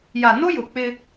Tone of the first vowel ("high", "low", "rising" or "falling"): low